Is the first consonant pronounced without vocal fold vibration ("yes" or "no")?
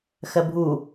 yes